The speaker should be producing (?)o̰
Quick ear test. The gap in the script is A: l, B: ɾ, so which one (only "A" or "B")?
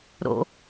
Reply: B